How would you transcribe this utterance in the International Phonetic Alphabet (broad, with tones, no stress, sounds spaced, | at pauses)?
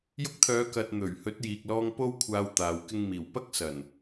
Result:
j ʊ˧ k̚ t̪ʰ œː˨˧ k ɐ˨ t̚ n̪ ɵ˨˩ ɥ h ɵ˨˥ t̚ j iː˨ k̚ l ɔː˧ ŋ p o˥ w kʷʰ aː˧ w t̪ aː˨ w k ɪ˧ ŋ m iː˨˩ w p ɐ˥ k̚ s ɐ˨˩ n